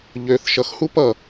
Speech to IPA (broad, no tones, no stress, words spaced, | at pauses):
ʎøθ ʃʌxhu pʌ